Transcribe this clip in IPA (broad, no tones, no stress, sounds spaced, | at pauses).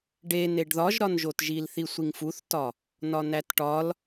ɖ e n e ɖ ð ɒ ʒ ɾ ɒ n ʒ o t ʒ i l θ i sʷ i ŋ f u θ t ɒ | n ɒ n æ t ʈ ɒ l